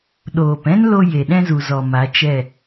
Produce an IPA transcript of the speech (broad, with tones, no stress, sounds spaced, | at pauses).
ɗ oː˨ p ɛ̃˦ n l o˧ j e˨ ɗ ɛ̃˦ z u˨ z ɔ˨ m a˨˦ t͡ʃ ɛ˦˨